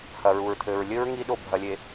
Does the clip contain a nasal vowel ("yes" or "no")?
no